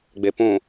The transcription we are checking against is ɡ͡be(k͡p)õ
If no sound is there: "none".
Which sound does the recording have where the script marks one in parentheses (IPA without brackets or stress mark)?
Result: p